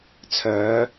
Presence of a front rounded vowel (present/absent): present